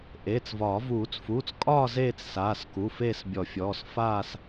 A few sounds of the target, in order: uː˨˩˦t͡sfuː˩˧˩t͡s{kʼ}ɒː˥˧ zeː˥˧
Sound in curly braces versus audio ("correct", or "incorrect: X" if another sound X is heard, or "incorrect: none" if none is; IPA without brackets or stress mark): correct